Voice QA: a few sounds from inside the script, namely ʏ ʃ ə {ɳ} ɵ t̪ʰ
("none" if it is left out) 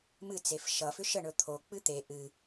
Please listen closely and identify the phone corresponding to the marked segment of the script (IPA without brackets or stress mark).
ɳ